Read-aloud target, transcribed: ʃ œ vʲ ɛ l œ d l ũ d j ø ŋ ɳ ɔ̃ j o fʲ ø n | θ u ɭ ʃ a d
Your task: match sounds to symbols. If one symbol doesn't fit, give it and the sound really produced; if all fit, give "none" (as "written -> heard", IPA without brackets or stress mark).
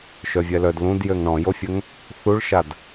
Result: n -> ŋ